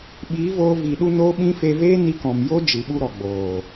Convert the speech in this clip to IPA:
ɓiː˨˦voː˧vi˨ ɗu˧ noː˦ɓĩ˦ fe˧veː˦ni˧kɔ̃˨m jo˦ d͡ʒɨ˨ɓu˧ɾɔ˨ ɡ͡boː˨

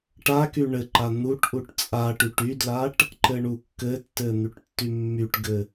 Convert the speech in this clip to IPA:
ʈaky ɳɘǃa n̪uʈʔuʈ t͡sʼaʈyʈ ydlaʈ | ǃɘɳukːɘtːɘ n̪yʈtːymːyʈɡɘ

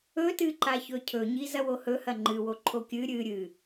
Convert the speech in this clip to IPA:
ɵtɨǃa çɵcʰɵɲi zɐwohɵhɐ ŋ͡ǃɨwo ǃʰokʲɨ ɾʲɨ ɾʲɨ

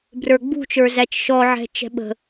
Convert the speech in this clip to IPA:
brə˞ɡ͡bṳt͡ʃə˞ zæt͡ʃʃɔʕɛ̤ t͡ʃɛ̤ɓə̤

